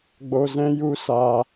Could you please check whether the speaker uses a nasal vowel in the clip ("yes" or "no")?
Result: yes